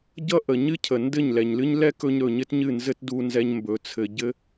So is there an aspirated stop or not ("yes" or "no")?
yes